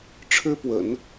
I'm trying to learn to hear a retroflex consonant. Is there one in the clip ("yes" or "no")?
yes